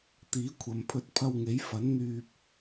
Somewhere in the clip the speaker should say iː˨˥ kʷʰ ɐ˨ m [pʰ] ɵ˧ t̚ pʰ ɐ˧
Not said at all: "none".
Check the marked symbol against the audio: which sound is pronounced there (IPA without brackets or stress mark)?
pʰ